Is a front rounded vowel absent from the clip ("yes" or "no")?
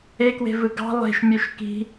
no